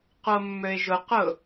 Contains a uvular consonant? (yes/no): yes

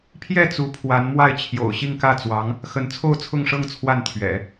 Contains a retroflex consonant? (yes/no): yes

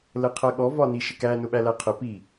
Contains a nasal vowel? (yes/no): no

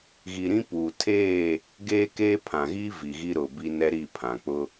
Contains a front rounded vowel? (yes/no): no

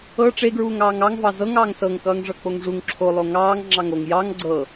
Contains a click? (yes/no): yes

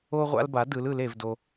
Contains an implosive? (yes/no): no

